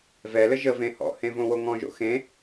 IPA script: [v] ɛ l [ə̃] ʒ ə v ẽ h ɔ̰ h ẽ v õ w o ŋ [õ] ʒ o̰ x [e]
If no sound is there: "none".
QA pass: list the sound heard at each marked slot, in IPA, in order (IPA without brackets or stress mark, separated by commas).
v, ə, ɔ̃, ẽ